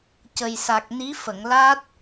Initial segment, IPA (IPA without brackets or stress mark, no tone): c